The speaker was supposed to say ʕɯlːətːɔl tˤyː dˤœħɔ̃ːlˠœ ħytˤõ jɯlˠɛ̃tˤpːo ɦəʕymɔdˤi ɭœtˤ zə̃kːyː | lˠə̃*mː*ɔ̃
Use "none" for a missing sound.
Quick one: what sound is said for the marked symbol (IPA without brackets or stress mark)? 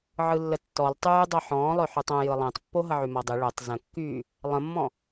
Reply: mː